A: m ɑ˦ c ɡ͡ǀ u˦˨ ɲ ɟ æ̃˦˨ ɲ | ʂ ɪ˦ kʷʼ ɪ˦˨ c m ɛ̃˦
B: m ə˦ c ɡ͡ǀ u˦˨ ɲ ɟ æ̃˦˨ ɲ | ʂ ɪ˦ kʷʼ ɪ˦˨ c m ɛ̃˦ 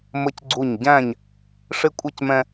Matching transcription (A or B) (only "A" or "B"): B